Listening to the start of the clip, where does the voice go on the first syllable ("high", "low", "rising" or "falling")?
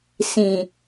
low